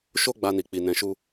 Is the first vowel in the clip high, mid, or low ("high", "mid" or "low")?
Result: mid